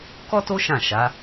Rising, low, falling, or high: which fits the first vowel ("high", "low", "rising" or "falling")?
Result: high